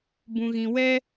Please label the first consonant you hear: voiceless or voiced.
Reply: voiced